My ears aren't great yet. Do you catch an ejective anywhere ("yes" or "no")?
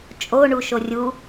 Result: yes